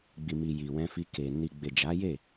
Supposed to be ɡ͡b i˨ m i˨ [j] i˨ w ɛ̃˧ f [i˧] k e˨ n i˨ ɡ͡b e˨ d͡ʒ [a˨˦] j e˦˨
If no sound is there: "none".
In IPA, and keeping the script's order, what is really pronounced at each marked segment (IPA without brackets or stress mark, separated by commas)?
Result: j, i˧, a˨˦